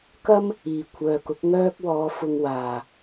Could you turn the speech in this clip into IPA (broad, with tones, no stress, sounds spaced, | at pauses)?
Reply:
k ɐ˥ m | iː˨˩ kʷʰ œː˨ k ʊ˨˥ k̚ ŋ œː˥ k̚ w ɔː˨˧ f ʊ˧ ŋ w aː˨˩